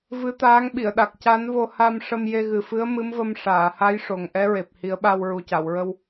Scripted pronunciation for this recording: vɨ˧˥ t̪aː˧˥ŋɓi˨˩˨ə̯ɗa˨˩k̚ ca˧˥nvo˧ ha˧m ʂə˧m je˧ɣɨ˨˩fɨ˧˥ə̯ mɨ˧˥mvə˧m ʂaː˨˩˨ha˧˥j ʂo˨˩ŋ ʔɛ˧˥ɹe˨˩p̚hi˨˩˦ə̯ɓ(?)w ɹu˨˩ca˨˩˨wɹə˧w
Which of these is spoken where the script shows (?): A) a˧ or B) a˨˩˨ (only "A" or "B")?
A